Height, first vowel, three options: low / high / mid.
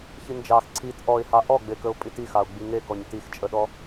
high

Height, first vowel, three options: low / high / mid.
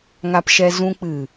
low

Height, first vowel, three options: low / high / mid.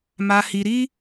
low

